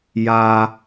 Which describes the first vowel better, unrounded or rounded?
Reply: unrounded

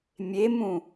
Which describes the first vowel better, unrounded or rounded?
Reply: unrounded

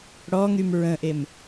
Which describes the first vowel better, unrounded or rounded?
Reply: rounded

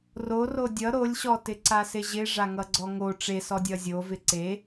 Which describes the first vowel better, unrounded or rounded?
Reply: rounded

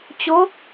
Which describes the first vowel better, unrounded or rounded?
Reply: rounded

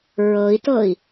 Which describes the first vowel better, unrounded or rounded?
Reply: unrounded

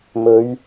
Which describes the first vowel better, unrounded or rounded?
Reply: rounded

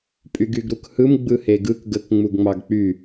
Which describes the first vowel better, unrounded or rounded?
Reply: rounded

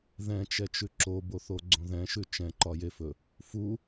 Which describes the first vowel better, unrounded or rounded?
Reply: unrounded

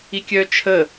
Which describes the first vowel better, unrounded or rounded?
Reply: unrounded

